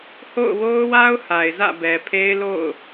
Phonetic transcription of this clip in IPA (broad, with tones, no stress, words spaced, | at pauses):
ho̰˦˨ʊ̯wo˦ʊ̯wa˦ʊ̯ ha˨ɪ̯zä̰˦˨bɛ˨ pʰe˦ɪ̯lo̰˦˨ʊ̯